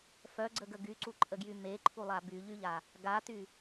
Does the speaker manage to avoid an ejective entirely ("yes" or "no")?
no